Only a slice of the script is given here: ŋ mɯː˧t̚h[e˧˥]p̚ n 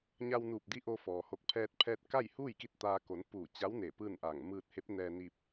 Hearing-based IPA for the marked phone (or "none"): e˧˥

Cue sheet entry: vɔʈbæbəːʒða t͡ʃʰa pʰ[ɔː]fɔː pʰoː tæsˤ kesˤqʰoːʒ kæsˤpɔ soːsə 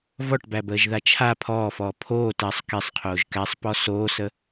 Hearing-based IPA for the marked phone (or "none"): ɔː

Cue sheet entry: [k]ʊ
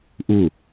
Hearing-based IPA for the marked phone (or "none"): ʔ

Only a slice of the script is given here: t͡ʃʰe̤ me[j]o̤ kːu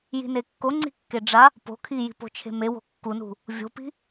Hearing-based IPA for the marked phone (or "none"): w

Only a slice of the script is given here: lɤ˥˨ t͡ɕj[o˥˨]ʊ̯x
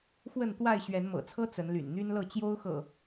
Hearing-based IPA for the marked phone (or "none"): o˦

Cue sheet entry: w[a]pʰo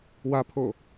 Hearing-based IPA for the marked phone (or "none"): a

